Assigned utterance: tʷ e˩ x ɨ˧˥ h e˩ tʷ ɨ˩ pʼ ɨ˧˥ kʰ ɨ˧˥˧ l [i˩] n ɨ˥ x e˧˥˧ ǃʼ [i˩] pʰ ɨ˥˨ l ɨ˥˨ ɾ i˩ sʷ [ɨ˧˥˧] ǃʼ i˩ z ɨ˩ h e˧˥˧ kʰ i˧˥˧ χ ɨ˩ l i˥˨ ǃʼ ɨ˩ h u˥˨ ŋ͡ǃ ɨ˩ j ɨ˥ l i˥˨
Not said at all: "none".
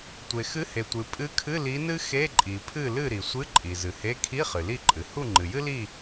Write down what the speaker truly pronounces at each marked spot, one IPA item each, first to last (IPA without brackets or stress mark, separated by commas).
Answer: i˧˥, i˩, ɨ˧˥˧